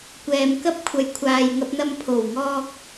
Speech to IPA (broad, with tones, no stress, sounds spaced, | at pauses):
kʷ ɛː˨ m k ɐ˥ p̚ kʷʰ ɐ˨˧ j kʷʰ aː˨ j ŋ ɐ˧ p̚ n̪ ɐ˧ m pʰ o˨˩ w ŋ ɔː˧ k̚